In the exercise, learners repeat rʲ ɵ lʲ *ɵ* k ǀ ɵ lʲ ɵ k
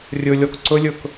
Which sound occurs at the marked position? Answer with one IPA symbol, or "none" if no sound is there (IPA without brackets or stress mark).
ɔ